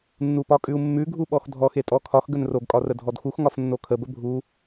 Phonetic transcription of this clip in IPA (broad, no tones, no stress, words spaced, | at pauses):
nːupɒkʼʉu̯mːʉ ɡʱuɓɔxdʱɔx etʼɔkʰɒx ɡənroɡ kʼɒrədʱɔdxux ŋɒfnːokʰə bəbʱu